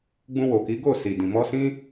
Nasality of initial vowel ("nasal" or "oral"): nasal